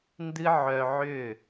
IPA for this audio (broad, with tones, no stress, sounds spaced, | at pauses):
n d ɨ˦ ʕ œ˧ ʕ ʏ˦˨